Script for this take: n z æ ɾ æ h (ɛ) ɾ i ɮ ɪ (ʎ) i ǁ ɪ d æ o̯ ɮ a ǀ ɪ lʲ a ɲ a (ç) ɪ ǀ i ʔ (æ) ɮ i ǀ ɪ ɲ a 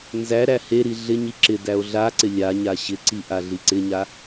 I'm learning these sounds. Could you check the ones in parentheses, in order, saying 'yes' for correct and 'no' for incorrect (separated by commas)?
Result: no, no, no, no